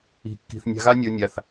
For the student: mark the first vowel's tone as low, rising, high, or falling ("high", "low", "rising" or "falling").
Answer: low